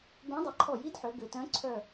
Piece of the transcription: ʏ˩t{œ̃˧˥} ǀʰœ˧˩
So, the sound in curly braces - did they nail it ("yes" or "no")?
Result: yes